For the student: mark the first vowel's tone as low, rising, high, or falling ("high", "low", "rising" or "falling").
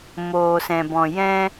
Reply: low